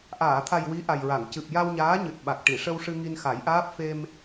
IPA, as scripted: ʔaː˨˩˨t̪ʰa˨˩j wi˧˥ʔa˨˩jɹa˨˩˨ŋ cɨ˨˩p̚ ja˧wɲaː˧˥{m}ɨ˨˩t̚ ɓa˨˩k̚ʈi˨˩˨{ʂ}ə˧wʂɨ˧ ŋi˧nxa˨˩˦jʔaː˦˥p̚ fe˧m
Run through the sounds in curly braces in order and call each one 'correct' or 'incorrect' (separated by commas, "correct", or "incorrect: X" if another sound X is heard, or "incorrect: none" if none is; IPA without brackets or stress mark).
incorrect: ɲ, correct